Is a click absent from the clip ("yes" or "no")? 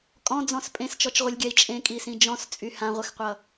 yes